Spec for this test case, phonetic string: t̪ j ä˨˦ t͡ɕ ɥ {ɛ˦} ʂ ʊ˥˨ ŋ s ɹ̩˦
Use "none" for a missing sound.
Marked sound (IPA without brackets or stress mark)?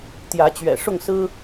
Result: ɛ̰˨˩